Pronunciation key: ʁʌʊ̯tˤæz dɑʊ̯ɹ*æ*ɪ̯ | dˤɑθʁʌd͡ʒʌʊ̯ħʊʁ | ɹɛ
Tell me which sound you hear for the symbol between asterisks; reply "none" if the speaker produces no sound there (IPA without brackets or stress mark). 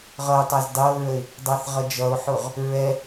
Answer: ə